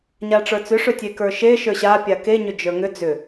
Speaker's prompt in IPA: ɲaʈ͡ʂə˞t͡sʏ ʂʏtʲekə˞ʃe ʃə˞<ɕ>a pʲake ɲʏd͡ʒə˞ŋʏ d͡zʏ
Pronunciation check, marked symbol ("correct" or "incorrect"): correct